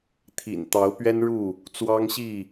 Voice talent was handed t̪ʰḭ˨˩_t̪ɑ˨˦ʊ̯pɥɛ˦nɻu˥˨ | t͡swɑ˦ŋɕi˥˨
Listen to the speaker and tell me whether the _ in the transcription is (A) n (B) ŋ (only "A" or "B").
A